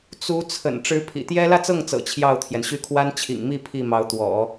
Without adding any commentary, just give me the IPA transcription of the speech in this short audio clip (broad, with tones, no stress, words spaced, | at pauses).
t͡su˧˥ t͡sʰə̰˨˩n ʈ͡ʂɻ̩˧˥pʰḭ˨˩t̪jɛ˥ lä˥˧t͡sɤ˥˩ŋt͡sɤ̰˨˩ t͡ɕʰjɑ˥˩ʊ̯t̪ʰjɛ˩nɕy˥˩ kʰwa˥nt͡ɕʰḭ˨˩ŋmi˥˧ pʰi˥˩mɑ˧˥ʊ̯t̪wɔ̰˨˩˦